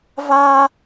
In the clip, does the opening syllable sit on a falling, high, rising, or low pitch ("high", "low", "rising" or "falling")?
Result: high